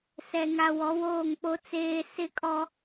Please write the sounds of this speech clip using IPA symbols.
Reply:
sɛ˨ŋa˨ wɔ˨˦woː˦˨ŋk͡po˦ t͡seː˦ sɪ˦kʼɔ˦

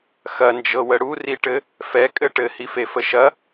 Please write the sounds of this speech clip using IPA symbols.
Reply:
xɐnd͡ʒɤwə ɽuriʈɘ | fɛkʼɘ ʈɘhifefə ʃɐ

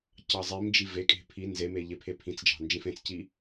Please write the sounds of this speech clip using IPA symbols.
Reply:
cɑzˤimd͡ʒi vekʼe̤ pʰi nzeme ʎepʰepʰĩt͡sd͡ʒɑ̤ nd͡ʒĩfẽt͡sci

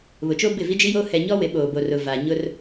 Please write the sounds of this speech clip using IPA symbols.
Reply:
βʊ˨t͡ʃoː˦bɪ˦˨ vi˦d͡ʒi˦joː˦ hɛ˨ɲɔ˦ wɪ˨˦ɓoː˨bo˨rʊ˨ va˨ ɲʊ˦r

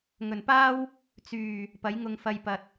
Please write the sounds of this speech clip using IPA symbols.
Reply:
ŋɵ˨˩npaː˥w | t͡syː˨˩ | pɐ˨˥jŋʊ˧ŋ fɐ˧j pɐ˨t̚

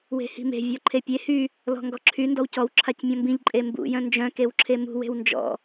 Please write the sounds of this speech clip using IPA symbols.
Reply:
we̤hi̤me̤ vʲɔǃʰepʲe hy | lɔ̤ŋɡɔǁʰy ndɔwcɔw ǁʰacmʲɔ̃mbĩʎ ǃʼembṵ jœ̃nd͡ʒœ̃ kewǁʰemṳ we̤wnd͡ʒɔ̰

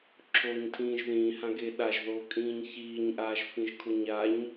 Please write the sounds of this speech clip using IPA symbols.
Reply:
ǁʰoːɲtʰĩːʒðĩːhã ɡeɗaʒðoː kʼĩːɲçiːɲʔaːʒ fĩʒkʰoɲaɲ

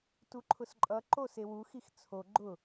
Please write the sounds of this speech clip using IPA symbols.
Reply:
tuǃʰʊsǃʼʌ ǃosewu xixt͡sʰo ɡ͡ǃʊ

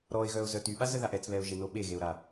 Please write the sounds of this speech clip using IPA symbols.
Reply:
ɾɔɪ̯ɣœʊ̯zœ tyɓazəðaʔ ɛt͡sβɛʊ̯ʒeno ɓeɣeʊ̯ɾa

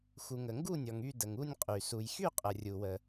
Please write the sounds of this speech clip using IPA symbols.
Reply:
xu˨ŋə˨ŋɡu˥˧nʲɔ˨ŋ y˥˧də˨ŋu˥˧nʲqʼy˨ su˨jxy˥˧ qʼə˨rʲu˨wə˨

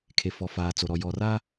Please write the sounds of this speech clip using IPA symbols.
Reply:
kʰe˨fɔ˨faː˨ t͡so˨ɾɔ˨ jɔ˨ra˦

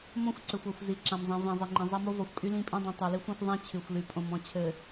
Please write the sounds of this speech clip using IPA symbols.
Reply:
mɔ̃˦xʷ ǀɘ˨xʷa˨xʷ zi˨ǁã˨mzˤĩ˨ vĩ˨zˤi˨ŋ͡ǃĩ˨ zˤa˦mo˦ vɔ˨xʷkʼy˦ lĩ˦pʼĩ˦dˤĩ˨ tˤy˨li˦xʷ ã˦xʷ ðˤã˦ t͡ɕʰy˨xʷly˨ pʼõ˨mɔ̃˨t͡ɕʰɘ˨

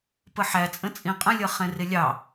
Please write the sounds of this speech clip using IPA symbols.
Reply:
pəħæt͡sʼə̃t͡sʼĩ qʼə̃lʲʌ χɛ̃rɪlʲɑ

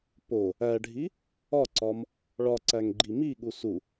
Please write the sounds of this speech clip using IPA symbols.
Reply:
po | æɖʱi | ɒǀɒm | ɭɒǀæŋɡ͡ǃi miɠu su

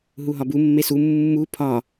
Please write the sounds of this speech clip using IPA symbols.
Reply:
ɦuɦɒbu mːesu mːu pʰɒ

